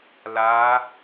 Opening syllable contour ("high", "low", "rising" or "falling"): rising